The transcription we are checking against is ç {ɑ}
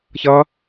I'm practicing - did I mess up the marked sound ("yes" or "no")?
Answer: yes